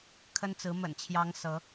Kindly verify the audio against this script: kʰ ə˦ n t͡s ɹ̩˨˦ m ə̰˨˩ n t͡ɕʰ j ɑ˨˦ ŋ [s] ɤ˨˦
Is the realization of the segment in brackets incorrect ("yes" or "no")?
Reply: no